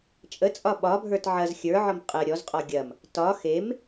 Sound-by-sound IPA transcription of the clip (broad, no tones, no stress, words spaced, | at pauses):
t͡ʃʼət͡sʼɒ ɓɒbʱə˞t ʕɐz xʲə˞ʕɒm qʼə ɾʲɔzqʼɔ ɡʲɐm | tɒ xem